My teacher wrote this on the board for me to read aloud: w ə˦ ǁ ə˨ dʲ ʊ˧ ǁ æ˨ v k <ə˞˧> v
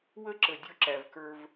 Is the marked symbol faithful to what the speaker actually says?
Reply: yes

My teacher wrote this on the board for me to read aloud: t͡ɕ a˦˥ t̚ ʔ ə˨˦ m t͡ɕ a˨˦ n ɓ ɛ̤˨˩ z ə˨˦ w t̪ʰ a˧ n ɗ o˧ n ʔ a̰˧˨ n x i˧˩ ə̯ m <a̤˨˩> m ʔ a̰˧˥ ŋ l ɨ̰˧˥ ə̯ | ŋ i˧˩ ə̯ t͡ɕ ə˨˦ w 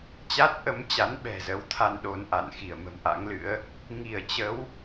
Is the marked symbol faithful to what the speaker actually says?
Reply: no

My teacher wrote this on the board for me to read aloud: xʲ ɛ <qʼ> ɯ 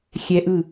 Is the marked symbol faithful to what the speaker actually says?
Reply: no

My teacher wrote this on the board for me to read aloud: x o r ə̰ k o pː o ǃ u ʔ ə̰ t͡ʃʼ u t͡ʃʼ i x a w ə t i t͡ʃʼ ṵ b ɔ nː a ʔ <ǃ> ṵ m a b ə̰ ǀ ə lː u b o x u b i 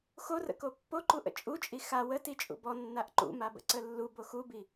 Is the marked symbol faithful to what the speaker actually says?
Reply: yes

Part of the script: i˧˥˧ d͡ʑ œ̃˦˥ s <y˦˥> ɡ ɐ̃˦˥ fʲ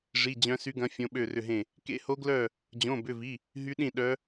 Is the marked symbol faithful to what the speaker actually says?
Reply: yes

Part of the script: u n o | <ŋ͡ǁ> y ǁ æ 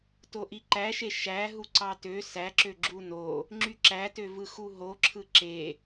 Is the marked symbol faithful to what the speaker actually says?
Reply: yes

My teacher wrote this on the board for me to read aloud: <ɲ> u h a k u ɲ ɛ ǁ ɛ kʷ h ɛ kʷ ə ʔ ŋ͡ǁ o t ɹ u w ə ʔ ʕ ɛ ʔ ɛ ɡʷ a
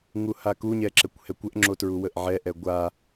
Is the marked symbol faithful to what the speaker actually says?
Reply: no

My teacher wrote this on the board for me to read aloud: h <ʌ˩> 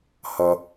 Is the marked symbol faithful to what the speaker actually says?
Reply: yes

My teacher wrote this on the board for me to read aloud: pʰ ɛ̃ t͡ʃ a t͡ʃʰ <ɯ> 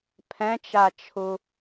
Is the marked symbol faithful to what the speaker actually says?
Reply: no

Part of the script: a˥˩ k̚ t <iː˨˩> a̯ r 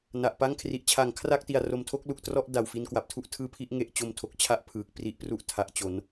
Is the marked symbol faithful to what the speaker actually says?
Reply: no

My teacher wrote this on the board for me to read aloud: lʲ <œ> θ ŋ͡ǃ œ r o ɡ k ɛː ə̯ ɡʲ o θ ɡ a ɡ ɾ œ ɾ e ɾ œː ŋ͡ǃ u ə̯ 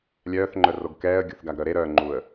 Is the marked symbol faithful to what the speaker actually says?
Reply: no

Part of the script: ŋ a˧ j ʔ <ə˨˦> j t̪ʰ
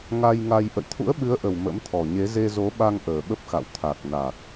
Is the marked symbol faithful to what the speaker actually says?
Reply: no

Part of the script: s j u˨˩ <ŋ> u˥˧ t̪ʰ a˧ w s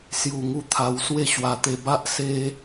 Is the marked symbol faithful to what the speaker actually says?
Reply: yes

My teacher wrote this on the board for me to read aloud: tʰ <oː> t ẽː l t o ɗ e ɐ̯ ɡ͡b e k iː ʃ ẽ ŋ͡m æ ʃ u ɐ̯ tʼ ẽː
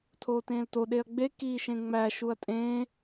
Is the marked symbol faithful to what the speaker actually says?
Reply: yes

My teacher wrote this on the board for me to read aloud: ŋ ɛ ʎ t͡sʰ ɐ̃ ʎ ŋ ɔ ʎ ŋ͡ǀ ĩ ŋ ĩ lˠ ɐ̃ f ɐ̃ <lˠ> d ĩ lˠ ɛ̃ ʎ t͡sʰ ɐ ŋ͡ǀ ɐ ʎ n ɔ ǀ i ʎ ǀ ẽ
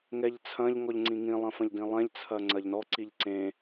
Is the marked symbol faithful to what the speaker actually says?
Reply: no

